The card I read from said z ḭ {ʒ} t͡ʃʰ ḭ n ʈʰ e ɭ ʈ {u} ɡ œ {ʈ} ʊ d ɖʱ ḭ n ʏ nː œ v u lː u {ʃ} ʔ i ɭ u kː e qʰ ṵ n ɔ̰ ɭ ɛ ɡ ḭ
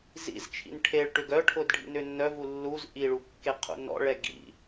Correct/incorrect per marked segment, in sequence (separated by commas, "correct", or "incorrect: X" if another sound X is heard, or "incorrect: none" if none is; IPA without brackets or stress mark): incorrect: z, incorrect: ʏ, incorrect: ʈʰ, incorrect: z